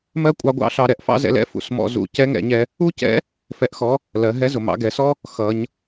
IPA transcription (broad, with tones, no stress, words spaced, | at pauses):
mɜ˥kʷʼɑ˧˥ɡʷɑ̰˧˥ ɬɑ˧ ɾɛ˩ʔfɑ̰˥zɛ̰˧lɛ̰˧˥ fṵ˩˧smɔ̰˧ zṵ˧ cɛ˧˥ŋɛ̰˩˧ɲɛ˧ | u˥cɛ̰˧˥ | fɛ˧ʔxɔ˧˥ | lɜ˩˧ɦɛ˧˥zʊ˩ mɑ̰˩˧ɡɛ˩˧sɔ˥ | xʌ˩˧ɲ